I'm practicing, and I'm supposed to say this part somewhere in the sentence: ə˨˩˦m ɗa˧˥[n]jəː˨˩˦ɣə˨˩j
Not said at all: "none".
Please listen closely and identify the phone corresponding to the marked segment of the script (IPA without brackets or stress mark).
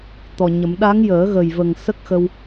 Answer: ŋ